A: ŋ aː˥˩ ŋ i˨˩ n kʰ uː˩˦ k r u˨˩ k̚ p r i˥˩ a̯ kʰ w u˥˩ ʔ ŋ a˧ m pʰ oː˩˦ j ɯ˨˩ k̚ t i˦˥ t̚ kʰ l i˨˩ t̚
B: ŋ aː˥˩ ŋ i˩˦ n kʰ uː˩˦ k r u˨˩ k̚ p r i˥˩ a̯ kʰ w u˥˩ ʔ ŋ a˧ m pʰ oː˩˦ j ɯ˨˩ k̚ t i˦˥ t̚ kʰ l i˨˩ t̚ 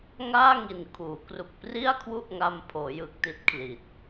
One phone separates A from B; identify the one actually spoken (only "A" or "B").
A